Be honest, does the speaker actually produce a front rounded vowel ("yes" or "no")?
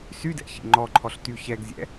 yes